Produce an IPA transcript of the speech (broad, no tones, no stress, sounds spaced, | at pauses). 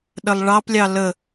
ɗ ə lˠ ɭ ɑ p lʲ ɑ l ə